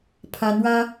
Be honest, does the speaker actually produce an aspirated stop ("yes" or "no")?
yes